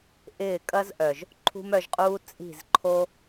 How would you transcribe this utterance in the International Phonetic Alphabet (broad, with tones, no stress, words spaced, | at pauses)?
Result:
ʔɪː˦˨ kʼɐ˦zʔœ˨ʒ | ǃʰṳ˦mœ˧ʒqʼuː˦ t͡sʼi̤˦˨zǃʰo˦